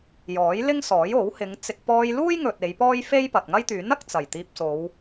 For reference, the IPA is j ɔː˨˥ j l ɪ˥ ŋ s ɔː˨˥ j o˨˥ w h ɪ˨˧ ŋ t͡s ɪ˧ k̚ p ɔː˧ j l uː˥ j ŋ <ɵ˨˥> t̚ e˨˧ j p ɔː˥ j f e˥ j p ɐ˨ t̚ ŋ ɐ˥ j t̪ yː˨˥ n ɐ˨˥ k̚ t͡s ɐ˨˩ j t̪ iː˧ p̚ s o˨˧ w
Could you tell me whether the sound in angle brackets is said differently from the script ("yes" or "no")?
yes